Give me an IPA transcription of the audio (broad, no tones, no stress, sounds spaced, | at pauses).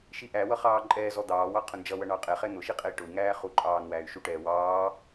ʃ i ʔ æ w ʌ χ ɑː ǃʼ ɛː z ɔ d̪ ɑː w ɑ qʰ ʊ n d͡ʒ ʌ w ʌ ɳ ɑ qʼ ɛ χ ɛ n̪ ʊ ʃ i qʼ ɛ i̯ ʈ ʊ i̯ ŋ æː χ u ǃʼ ɑː n w æː y̯ ʃ u ʈ ɛː w ɑː